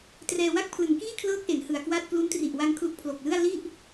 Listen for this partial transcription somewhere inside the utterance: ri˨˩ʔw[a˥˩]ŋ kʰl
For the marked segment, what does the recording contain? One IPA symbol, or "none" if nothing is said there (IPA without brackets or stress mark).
a˧